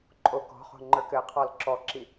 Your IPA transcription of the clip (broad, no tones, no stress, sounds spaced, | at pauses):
ǃʼ o k ɔ̤ χ o̤ ŋ͡ǃ ə˞ k ɘ qʰ ɔ l ǁ ɔ ǁ i